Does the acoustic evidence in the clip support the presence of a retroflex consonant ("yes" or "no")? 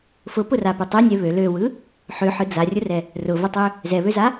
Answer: no